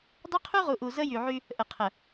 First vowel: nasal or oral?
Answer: oral